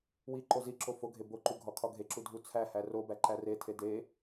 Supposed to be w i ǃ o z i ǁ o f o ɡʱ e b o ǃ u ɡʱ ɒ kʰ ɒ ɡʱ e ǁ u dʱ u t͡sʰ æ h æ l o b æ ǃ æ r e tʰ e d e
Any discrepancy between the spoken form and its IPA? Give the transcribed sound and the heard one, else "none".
l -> r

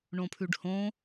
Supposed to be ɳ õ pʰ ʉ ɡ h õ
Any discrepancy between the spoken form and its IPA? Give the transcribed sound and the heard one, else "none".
ɡ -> ɖ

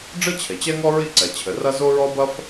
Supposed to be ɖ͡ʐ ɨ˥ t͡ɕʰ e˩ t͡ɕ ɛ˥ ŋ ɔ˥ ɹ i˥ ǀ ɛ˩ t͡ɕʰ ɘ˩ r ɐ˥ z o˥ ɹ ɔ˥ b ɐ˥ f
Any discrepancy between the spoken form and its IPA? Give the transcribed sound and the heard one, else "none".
none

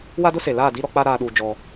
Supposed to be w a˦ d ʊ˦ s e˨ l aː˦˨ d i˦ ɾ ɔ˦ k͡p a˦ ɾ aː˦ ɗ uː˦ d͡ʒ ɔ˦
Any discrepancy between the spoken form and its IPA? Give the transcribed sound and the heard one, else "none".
none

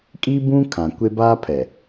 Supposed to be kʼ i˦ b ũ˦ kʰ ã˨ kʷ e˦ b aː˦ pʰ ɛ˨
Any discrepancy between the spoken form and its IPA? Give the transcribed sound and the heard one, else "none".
none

